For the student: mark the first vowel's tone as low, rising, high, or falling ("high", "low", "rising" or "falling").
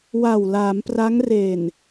low